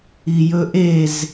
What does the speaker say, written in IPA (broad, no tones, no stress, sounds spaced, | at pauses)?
i j ɵ ʔ e z